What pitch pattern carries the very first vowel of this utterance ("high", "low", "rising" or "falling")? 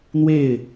falling